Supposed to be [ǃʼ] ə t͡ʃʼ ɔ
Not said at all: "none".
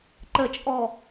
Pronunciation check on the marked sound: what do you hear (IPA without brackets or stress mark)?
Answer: ǃ